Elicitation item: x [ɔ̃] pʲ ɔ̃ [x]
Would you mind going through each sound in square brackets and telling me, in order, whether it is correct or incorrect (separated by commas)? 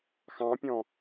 incorrect, incorrect